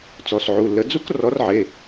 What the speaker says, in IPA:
t͡s ɔ˩˧˩ s ʕ u˩˧˩ lː ə˨˥ d͡z u˦˥ k r ɔ˨˥ r ʕ e˩˧˩

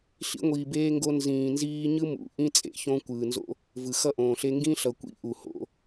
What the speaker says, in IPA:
ɬ ḭ˧ ŋʷ iː˨ b eː˧ ŋ ɡ o˧ n z ĩː˨ n z iː˦ ɲ ɯ˦ m ṵ˨˦ ʔ ĩ˦ t͡sʼ ḛ˨ ç õ˦ kʷ ɯː˨ n z o̰˦ | v ɯ˨ x ʌ˦ ʔ õː˨ ɬ e˦ ŋ ɡ ĩ˦ ɬ ʌ˨ kʷ ḭ˦ ʔ u˨ h o̰˦

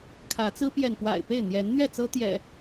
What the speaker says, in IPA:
kʰ ä˨˦ t͡s ɹ̩˦ p j ɛ˨ n p w a̰˨˩ ɪ̯ p e˥˨ ɪ̯ n̪ j ɛ˨˦ n n̪ ɥ ɛ˥˨ t͡s ɤ˦ t̪ j ɛ̰˨˩

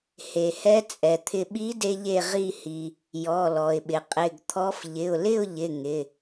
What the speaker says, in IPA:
h e˩ h ɛ˧˥ t͡sʼ ɛ˩ t̪ʰ ɪ˧ ɓ i˧˥ d e˧ ʎ e˧˩ ʁ i˧˩ h i˩ | j ɔ˩˧˩ l ɔ˩ ɪ̯ ɓ ɪ˩ qʼ ɪ˩˧˩ ɡ t̪ʰ ɔ˧˥ f ʎ ɪ˩˧˩ ʊ̯ l ɪ˥˨ ʊ̯ ʎ ɪ˩˧˩ ŋ ɪ˩˧˩

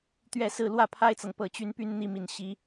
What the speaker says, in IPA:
t̪ ɥ ɛ˥˧ s ɹ̩˥˧ l w ä˥˩ pʰ a˥ ɪ̯ t͡s ɤ˨ ŋ p ɤ˥˩ t͡ɕ y˥ n p y˥ n n̪ i˥ m i˥˩ n ɕ i˥

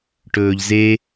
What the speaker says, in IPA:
ʈ ɵː ʎ z e

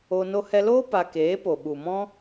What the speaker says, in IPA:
o˧ n o˧ h ɛ˧ l oː˦ p a˧ k eː˨˦ p o˨ ɓ u˨ m ɔ̃˦

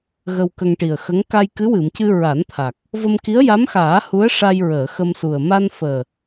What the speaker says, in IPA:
ɣ ə˧ w k ə˧ ŋ ʈ i˨˩ ə̯ x ə˧˥ ŋ k a˧ j k ɨ˧˥ w ɨ˨˩˨ m c ɨ˧ ɹ a˨˩˦ n t̪ʰ a˨˩ k̚ | v ə˧ m k i˧˥ ə̯ j a˧˥ m x aː˨˩˦ h u˧˥ ə̯ ʂ a˧ j ɹ əː˨˩˨ x ə˧ m s u˨˩ ə̯ m a˧ n f əː˨˩

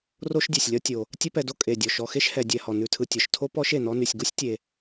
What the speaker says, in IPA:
r o˥ ʃ dʲ e˩ sʲ lʲ ɒ˥ tʲ o˩ | tʲ ɛ˦ p ɛ˨ d o˥ kʼ e˩ dʲ ɔ˩ ʃ ɔ˨ x e˥ ʃ h ɛ˨ dʲ ɛ˨ h ɔ˩ n ʉ˨ tʰ ɯ˨ tʲ ɒ˩ ʃ tʰ o˥ p ɔ˦ ʃ e˩ n ɔ˦ n y˨ sʲ ɡ u˥ sʲ tʲ e˨

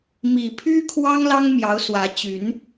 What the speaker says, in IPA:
m i˨˩ pʰ y˦ kʰ w ɑ˦ ŋ l ɑ˦ ŋ m j ɑ˨˦ ʊ̯ s w ä˨˦ t͡ɕ y˨˦ n

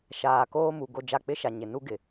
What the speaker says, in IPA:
ʃ aː˨ k oː˦ m u˨ ɡ o˦˨ d͡ʒ a˦˨ k͡p ɪ˦ ʃ a˨ ɲ ɪ˨ n u˦ ɡ ɪ˨

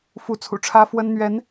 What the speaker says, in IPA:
f u˧˥ t͡sʰ ṵ˨˩ ʈ͡ʂʰ ä˥ f w ə˥ n n̪ ɥ ɛ˧˥ n

